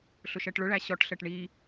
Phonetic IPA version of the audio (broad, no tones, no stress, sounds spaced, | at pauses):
ɬ ʊ ʃ ɜ ʈ ɭ ʊ ɭ æ ɕ ɔ ʈ ɬ ɜ ʈ ɳ i